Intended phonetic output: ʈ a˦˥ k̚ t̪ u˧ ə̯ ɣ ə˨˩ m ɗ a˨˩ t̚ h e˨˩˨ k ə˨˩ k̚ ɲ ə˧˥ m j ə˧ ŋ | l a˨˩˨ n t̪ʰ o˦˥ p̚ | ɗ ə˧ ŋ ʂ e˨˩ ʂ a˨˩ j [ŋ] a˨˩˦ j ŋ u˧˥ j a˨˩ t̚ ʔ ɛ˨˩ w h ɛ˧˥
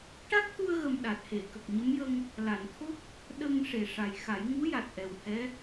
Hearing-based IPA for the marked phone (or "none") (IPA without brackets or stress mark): x